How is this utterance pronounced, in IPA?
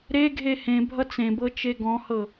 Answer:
ɾ e ɡʱ e h ẽ bʱ ʌ t͡s ẽ b ɤ t͡ʃ e ɡ ɔ̃ h ɤ

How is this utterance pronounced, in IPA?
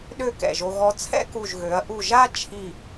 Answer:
ɗ ø˥˧ k ɛ̰˧˩ ʒ o˧ ɣ ɔ˧ t͡sʰ ɛ̰˥ k u˧˩ ʒ ɣ ø˩˧ ɐ̯ ʔ u˧˩ ʒ a˥ t͡ʃʰ i˧˩

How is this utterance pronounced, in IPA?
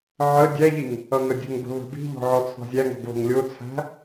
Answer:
ʕ ə dʲ æ ʎ i ŋ | ʌ ŋ ə dʲ ə̤ ŋ b ə̤ β ə̤ b i̤ ʎ ɔ̤ ʕ ɔ t͡sʰ ɔ̤ zʲ æ ŋ ɔ̤ ɡ β ə̤ ŋ lʲ o t͡sʰ æ̤

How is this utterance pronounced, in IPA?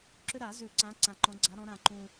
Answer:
ǁ ʏ˦ ɾ a˨˩˦ z ʉ˨˩˦ ǀ ã˨˦ ǀ ã˨˩ ǃ ɔ̃˨˦ ɡ͡ǀ a˨˦ ɾ ɔ̃˨˦ ɾ ã˨˩ ǃ ũ˨˩

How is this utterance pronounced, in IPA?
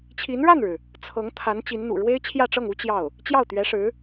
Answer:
t͡ɕʰ i˧˥ n ɻ a˥˩ n ɻ ɻ̩˩ | t͡sʰ ɤ˧˥ ŋ t̪ʰ a˧˥ n t͡ɕ i˧˥ n n̪ ṵ˨˩ ɻ w e˥ ɪ̯ t͡ɕʰ j ä˥˧ ʈ͡ʂ ɤ˥˩ ŋ u˥ t͡ɕ j ɑ˥˩ ʊ̯ | t͡ɕ j ɑ˥˩ ʊ̯ t̪ ɥ ɛ˧˥ ʂ ɻ̩˧˥

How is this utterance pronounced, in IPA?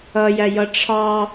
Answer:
ʌ j æ j ʌ ʈ͡ʂʰ ɑ

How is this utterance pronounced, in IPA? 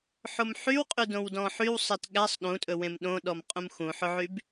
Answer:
ħ o m ħ y w qʼ y d õ w d ɔ̃ ħ y w sˤ ɛ t ɠ æ sˤ ɗ ũ tʼ ɵ w ẽ m ɗ õ ɗ ɔ m qʼ ũ m x ũ ħ ɵ ʕ y b

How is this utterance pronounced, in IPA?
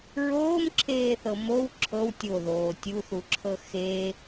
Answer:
ɹ oː m ǁʰ eː θ ɤ m o w ǁʰ ɤ w tʲ o ð oː tʲ u θ u ǁʰ ɤ x e

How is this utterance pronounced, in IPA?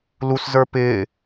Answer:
l u s z ə˞ p ɪː

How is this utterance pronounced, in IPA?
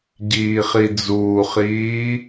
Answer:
ɟ iː χ i d͡z uː χ iː

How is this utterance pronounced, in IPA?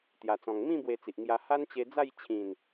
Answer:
t̪ j a˨˩ t͡s ɔ̃˨˩ ŋ m ĩ˥˧ b w e˧ t͡s i˨ ʔ ŋ j a˧ h a˦ n t͡ɕ e˧ d͡z a˥˧ j t͡ɕʰ ĩ˨˩ n

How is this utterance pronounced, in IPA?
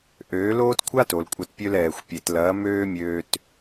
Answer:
ʔ øː˨˦ l oː˦ t kʷʰ a˦ t o˨ l kʷʼ ɐ˧ t pʲ ø˦ l ɛː˨ xʷ pʲ e˨ t l ɐː˨˦ m øː˦ mʲ øː˧ t

